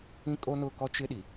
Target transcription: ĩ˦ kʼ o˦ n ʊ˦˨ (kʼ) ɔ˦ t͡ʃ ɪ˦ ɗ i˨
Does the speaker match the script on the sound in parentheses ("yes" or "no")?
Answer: no